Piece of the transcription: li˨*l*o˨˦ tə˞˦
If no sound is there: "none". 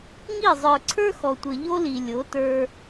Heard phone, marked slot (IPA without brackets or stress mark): lʲ